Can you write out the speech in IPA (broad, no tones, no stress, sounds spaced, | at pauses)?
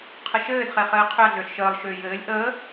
qʰ ə ʃ ɘː d χ e χ ɘː qʰ ʏ ɐ̯ ɮ ʏː ɬ ʃ əː lˠ ʃ ʏː j ɘː lʲ ʔ əː